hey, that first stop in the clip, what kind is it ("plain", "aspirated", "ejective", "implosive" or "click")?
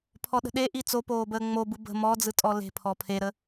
aspirated